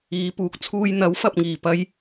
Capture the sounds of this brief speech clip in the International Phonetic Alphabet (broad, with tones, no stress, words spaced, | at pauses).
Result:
iː˨˧puː˨k̚t͡sʰuː˧j n̪ɐ˨˥w fɐ˨p̚ŋiː˨˩pɐ˧j